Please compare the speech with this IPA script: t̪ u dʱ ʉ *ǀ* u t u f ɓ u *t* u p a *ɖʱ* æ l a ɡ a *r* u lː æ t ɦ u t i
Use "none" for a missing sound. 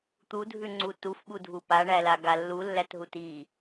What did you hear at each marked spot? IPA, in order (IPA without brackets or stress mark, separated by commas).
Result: ŋ͡ǀ, dʱ, ɳ, lː